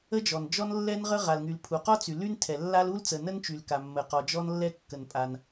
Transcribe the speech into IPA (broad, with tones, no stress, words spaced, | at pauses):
ə˥d͡ʒɔ˩nd͡ʒɔ˥n lːɛ˥nʁə˥ ʁa˩lŋy˩l pʰu˩qɔ˥t͡sy˩ ly˥ntʰɛ˩lːa˥l u˥lt͡sə˩ nə˥nt͡ʃy˩lka˩ mːə˩qɔ˩d͡ʒɔ˥nlːɛ˥ kːə˩npʼa˩n